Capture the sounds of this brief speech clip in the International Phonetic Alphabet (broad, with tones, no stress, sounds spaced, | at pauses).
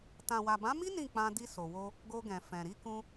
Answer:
t ã˨ w a˨ b ã˨˦ m i˦ n ĩ˦˨ k͡p ã˧ d i˧ s o˨ w o˧ | ɡ o˧ ɡ ɛ̃˨ f ɛ̃˨ ɾ i˧ k ũ˧